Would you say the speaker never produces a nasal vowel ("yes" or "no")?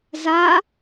yes